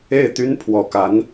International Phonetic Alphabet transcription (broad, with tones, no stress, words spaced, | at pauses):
e˥˩ɪ̯t̪y˥n pʰwɔ˨˩ka˧˥n